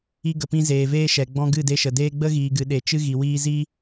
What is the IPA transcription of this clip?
i˧ɡə˨pĩ˧ zeː˨veː˦ʃɛ˨ɡ͡bɔ̃˦ ɡɨ˦˨de˧ʃə˨deː˦ ɡ͡bə˦ ɣiː˨ɡɨ˨ɗe˨ t͡ʃɨ˦ ɣi˨wiː˦ zi˦

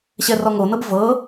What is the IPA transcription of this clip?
ɕɛrɔŋonɤb vɤ

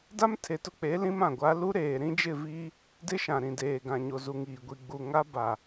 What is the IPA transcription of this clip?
da˦mtʰe˨tʊ˦k͡pe˨˦ lĩ˦mã˨ɡʷa˦ lu˦ɾeː˨ ɾĩ˦d͡ʒɪ˦˨vi˦ | dɪ˦ʃã˨ɾĩ˨deː˨ ɡã˨ɲo˨zu˨ŋiː˨ ɡʷi˨ɡ͡bu˨ ŋa˦ba˨

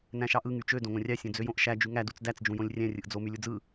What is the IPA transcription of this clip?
næ̃ʃɑʔɯ ŋyt͡ʃø dõŋõrʲɑ sʲũd͡zøjõʔʃæ d͡ʒyŋæ dut͡sdæt͡s d͡ʒũjõlʲrʲæ̃ rʲɯʔd͡zo mylʲud͡zɯ

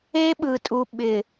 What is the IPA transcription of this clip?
e˦ɓɯ˨tʼu˨ ɓɪ˨

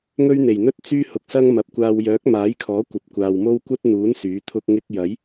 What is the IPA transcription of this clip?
ŋɵ˥ɥn̪e˨˩j n̪ɵ˥t̚t͡syː˥ hʊ˨k̚sɐ˥ŋmɐ˨p̚kʷaː˧w jœː˨˥k̚maː˨˥jkʰɔː˨˥ kʷɐ˨˥p̚kʷaː˨wmo˥w kʷɐ˥t̚n̪uː˨˥n syː˨˥t̪ʰʊ˥k̚ ŋɪ˥k̚ jɐ˨˥j

